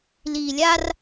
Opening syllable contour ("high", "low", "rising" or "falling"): low